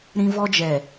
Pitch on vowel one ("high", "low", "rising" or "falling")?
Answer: high